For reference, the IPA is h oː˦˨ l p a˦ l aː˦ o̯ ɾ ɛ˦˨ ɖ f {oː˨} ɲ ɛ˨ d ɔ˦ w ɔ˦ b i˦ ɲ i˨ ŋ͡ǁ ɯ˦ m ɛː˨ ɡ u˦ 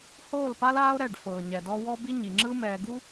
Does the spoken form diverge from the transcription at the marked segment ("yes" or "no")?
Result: yes